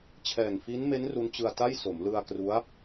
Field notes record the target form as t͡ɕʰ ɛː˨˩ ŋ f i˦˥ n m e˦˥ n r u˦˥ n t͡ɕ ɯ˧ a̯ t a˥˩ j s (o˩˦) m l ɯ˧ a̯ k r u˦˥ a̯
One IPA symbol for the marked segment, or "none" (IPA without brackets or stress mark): o˩˦